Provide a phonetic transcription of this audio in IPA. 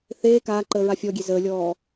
θeː kaːǃəː ɹafʲɔɡʲe zəːlʲɔː

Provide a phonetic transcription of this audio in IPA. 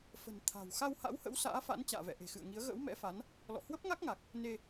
fə̤˨˩n t̪ʰa̤˨˩w xa˧wha̰˧˥whə̰˧˥w sa̰ː˧˥fa̰˧˥n t͡ɕa̰ː˧˨vɛ̰˧˨ʔe̤˨˩xɨ̰˧˨ə̯ ŋi˨˦ə̯ ɣə̰ː˧˥wmɛ̰˧˥fa˨˦n | lɔ̰˧˨hwə˦˥p̚ŋa˦˥k̚ŋa˨˩k̚ | ne˧

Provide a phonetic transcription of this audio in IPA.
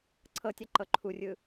ǀʰɤtʲa ǃɤǃʰurʲɯ

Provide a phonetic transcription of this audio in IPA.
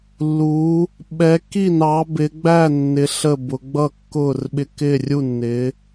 lːu˨˦ | ɓɛ˨˦kːi˥˨nɑ˨˦ bɪ˨˦ɡ͡bæ˥˨nːɪ˨˦ ɬə˥˨bʊ˨˦ ɡ͡bʌ˥˨kːʊː˥˨rɓɪ˥˨ kɪː˥˨rʲu˥˨nːɪː˨˦

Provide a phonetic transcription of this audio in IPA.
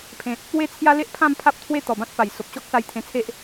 pʰẽ˨t̚ | we˦ t͡sʰja˦le˦ʔpʰã˥˧m pʰa˦p̚t̪ʰwe˦ t̪ɔ˨˩bã˦t̚pa˨˩j so˨p̚ɕɔ˦k̚sa˧j t̪ʰẽ˧t͡sʰe˦ʔ

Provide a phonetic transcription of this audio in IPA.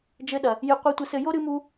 d͡ʒɘ˦ɗɐ˧ | jɨ˧ qʷɨ˧tʷɘ˧sɘ˧jo˦ ɾɨ˦mu˦

